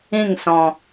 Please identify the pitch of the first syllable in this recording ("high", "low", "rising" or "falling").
falling